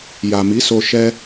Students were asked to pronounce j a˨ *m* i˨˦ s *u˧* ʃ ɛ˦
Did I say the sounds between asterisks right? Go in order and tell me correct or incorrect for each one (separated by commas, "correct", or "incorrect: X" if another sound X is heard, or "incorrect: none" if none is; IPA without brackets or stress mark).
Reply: correct, incorrect: o˧